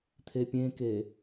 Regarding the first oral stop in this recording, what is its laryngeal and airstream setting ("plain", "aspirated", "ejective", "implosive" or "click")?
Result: aspirated